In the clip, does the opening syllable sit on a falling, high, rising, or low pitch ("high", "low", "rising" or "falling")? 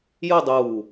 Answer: falling